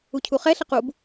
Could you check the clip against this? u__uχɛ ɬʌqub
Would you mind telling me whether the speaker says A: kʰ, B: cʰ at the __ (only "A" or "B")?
B